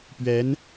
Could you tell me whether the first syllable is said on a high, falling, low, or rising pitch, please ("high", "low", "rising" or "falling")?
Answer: rising